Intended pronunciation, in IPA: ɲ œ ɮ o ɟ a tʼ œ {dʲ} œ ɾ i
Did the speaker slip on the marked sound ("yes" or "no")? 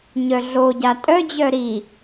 yes